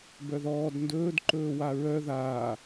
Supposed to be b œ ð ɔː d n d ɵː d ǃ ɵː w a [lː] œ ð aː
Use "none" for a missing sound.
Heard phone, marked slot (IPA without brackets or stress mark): ɹ